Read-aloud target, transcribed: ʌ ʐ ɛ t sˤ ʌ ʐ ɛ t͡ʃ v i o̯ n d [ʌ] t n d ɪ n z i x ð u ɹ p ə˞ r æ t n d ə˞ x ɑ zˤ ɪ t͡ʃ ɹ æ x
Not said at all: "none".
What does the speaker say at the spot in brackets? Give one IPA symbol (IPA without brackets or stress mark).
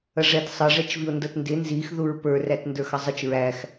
ʌ